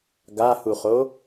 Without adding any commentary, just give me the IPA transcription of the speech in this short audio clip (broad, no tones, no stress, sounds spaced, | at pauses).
ɡ a h u χ o